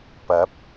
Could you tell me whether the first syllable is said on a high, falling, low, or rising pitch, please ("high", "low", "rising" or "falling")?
rising